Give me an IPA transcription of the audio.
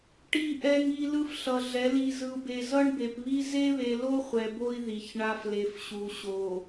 ʈ i˨ ʔ ɛ˨ ŋ i˨ l ɯ˦ f ɬ ʌ˨ ɮ ɛ˨˦ l i˨ z ɯ˨ u̯ b e˨ z ʌ˦ ɳ b e˨ p β i˦ z e˦ β e˨ l o˦ χʷ ɛ˨ b o˦ i̯ ð i˨ ç ɳ a˦ f l e˨ f ɕ u˨ ɕ o˨

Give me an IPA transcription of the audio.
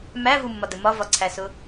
m æ v u mː ɒ d ə m ɒ v ɒ ǀʰ æ s ʊ

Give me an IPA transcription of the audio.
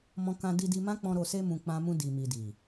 m ɔ̃˧ k ã˧ d i˧ d i˧ m ã˦ k͡p ɔ̃˧ ɾ o˨ s e˧ m ũ˨ k͡p ã˧ m ũ˧ d i˨ m i˨ d i˨

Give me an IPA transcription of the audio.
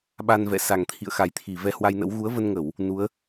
ɓ a˧ n v ɛ̰˧˨ s a˨˩ ŋ t̪ʰ ḭ˧˨ ə̯ x a˨˩ j t̪ʰ i˧˩ v ɛ˧ h w a˧ j n ə̰˧˥ w ɣ u˨˦ ə̯ v ə˧ n ŋ ə˧˩˨ w | n u˨˦ ə̯

